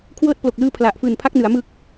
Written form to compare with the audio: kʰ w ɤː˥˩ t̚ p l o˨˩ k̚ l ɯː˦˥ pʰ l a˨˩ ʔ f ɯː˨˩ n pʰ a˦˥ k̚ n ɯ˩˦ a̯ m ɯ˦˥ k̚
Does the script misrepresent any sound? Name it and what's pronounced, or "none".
none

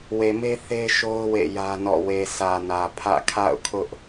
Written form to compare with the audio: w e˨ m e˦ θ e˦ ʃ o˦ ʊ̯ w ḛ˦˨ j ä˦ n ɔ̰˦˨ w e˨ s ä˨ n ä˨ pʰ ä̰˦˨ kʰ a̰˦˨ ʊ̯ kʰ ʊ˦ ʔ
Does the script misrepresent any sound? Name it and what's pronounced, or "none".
none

